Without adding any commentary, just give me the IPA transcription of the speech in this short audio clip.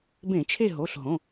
b ẽ˧˩˧ t͡ʃʰ e˦˨ ɦ o˩˧˩ ɬ ɦ õ˩˧˩

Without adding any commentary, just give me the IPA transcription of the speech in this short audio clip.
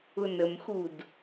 ʊ n ə m x u d

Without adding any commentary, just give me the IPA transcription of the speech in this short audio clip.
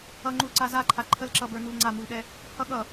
ʌ ŋ͡ǃ u l ǀ a z a ǃʰ a ǃʰ ə l ǁ ʌ b ə˞ n u l ŋ͡ǀ a m u l ɗ ɛ | h ʌ ɠ ʌ

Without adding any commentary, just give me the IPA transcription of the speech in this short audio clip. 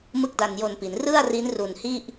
m ɯ˥˩ k̚ d a˧ n j o˧ n p i˩˦ n r ɯ˥˩ a̯ r i˦˥ n r u˨˩ n h i˥˩ ʔ

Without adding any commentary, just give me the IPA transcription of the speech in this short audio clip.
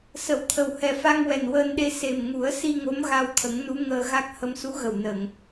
s ə˨˩˨ w t̪ʰ ə˨˩ w h ɛ˨˩ f a˧ ŋ w ɛ˨˩ n w əː˧ n ɗ e˧ s e˨˩ m ŋ u˨˩˦ ə̯ s i˧ ŋ o˧˥ m ɣ a˧ w t̪ʰ ə˨˩˦ ŋ n u˧˥ ŋ əː˧ ɣ a˦˥ k̚ h ə˧ m s u˧˥ ɣ ə˨˩ w n əː˨˩˨ ŋ

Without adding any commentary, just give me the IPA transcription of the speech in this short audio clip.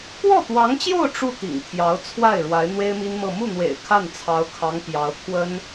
k w ɔ˥˩ t̪ w ɑ˧˥ ŋ t͡ɕ j o˥˧ ʊ̯ ʈ͡ʂ u˥˩ t̪ ḭ˨˩ ŋ t̪ʰ j ɑ˧˥ ʊ̯ t͡sʰ w a˥˩ ɪ̯ ɻ w a˧˥ ɪ̯ n̪ w e˥ ɪ̯ m i˥ n m ɤ˥˧ m u˥˩ n̪ w ḛ˨˩ ɪ̯ kʰ a˥˩ n t͡sʰ ɑ˧˥ ʊ̯ kʰ ɑ˧˥ ŋ p j ɑ˧˥ ʊ̯ kʰ w ə˥ n

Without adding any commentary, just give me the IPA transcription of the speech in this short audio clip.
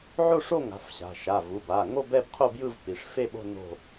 ʕ o˥˧ ʂ o˥˧ ŋ a̤˩˧˩ f ɕ a̤˩˧˩ ʃ a˩˧˩ v u˩˧˩ b a˩˧˩ ŋ o˥˧ b ɛ˥˧ b qʰ o˥˧ b j ɯ˥˧ v p i˩˧˩ ʂ f e˥˧ ɓ o̤˥˧ n o̤˥˧

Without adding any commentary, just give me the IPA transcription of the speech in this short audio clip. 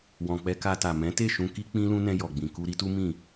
w ɔ̃˨ k͡p ɛ˧ k a˧ t a˨ m ɛ̃˨˦ t e˦˨ ʃ ũ˧ k i˦ k͡p ĩ˦ l ũ˦ n ɛ̃˧ j ɔ˨ ɡ͡b ĩ˨ k u˧ ɾ i˦ t u˦ m ĩ˦˨

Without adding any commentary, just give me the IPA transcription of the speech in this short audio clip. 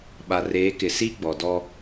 ɓ a˨ r eː˨˦ k ɪ˨ s i˦ ɡ͡b ɔ˨ d ɔ˦

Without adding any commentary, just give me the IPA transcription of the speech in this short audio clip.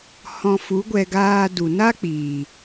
h ɔ̃˧ f u˨˦ ɡʷ ɛ˧ ɡ aː˧ d u˨ n a˦ k͡p iː˨

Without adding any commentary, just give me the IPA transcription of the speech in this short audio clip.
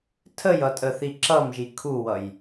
tʰ ə j ʌ tʼ ə θ i ǁ ʌ m ʒ i kʰ u w ʌ j

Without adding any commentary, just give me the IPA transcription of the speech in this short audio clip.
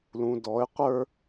l ũ˨ d ɔ˨˦ ɪ̯ qʷ ə˞˦

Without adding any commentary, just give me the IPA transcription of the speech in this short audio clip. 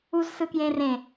u z s ɯ k j ẽ r ẽ

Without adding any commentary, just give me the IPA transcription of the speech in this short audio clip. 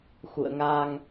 x ṵ˧˨ ə̯ ŋ a˧ ŋ

